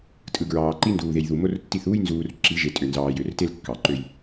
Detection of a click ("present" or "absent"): present